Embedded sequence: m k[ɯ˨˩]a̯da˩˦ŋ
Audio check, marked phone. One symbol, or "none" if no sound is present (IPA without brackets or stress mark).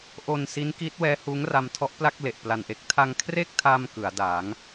ɯ˩˦